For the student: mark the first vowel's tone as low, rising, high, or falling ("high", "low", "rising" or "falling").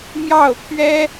falling